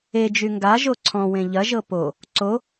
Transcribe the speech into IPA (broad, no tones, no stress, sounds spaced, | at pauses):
e d͡ʒ y ŋ ɡ a ʒ o ǀʰ ɔ̃ w ẽ ʎ ɐ ʒ ɤ p o | ǀ o